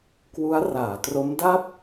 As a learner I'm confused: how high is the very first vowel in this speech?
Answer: high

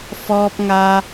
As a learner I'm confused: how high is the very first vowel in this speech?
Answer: mid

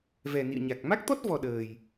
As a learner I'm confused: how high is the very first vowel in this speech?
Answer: mid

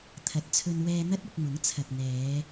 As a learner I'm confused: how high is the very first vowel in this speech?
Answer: low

